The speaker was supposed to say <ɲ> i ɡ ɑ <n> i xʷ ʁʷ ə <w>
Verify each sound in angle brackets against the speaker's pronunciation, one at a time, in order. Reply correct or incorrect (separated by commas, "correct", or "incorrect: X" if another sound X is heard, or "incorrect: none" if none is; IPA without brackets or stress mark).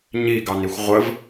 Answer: correct, correct, incorrect: v